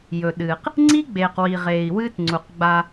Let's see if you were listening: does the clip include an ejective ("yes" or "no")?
no